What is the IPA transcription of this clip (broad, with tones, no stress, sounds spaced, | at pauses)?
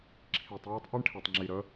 ǁʰ i˨ tˤ j i˦ tˤ ʔ i˦ ɳ ʈʰ e˨ tˤ ŋ͡ǁ i˨ ɾ ə˨˦